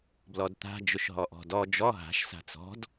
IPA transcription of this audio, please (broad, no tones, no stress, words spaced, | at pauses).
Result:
blɔdt̪a̤ d͡ʒʊʃɦɔʔɔ̤dɔ d͡ʒɔ ɦa̤ʃ sa̤t͡sɔ̤d